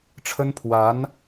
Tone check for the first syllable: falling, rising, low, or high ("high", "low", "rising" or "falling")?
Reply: high